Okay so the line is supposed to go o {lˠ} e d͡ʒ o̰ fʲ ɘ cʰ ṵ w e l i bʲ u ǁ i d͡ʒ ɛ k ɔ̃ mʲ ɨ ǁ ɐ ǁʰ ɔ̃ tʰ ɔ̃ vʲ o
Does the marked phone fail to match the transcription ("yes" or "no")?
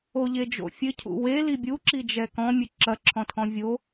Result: yes